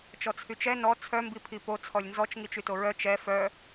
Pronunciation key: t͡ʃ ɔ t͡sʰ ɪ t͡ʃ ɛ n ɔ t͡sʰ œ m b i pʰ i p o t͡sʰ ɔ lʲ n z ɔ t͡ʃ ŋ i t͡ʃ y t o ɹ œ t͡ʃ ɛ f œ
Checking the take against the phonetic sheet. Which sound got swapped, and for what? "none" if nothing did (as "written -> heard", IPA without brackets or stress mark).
ɪ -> y